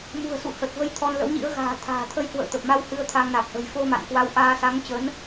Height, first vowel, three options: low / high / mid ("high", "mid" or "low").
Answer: high